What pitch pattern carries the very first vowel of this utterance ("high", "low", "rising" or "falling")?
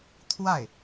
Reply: falling